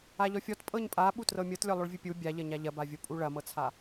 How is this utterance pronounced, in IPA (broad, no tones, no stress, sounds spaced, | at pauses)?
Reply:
a ʎ ɔ fʲ ɔ t pʼ ɤ ɲ pʼ a ɓ u t r ɤ mʲ ɤ t lʲ ɔ lˠ o ɭ vʲ u pʲ u bʲ a ʎ ɐ ɲ a ʎ ɐ b a vʲ o pʼ u ɭ ɐ m ɤ t͡sʰ a